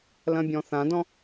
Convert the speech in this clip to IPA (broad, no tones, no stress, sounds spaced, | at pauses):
l ɐ̃ bʲ ɔ̃ θ ã d ɔ̃